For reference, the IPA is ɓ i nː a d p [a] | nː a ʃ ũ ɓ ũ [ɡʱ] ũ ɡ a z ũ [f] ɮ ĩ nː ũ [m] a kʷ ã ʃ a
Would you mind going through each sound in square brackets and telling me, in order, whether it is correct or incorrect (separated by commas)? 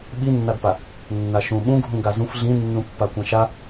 correct, correct, correct, incorrect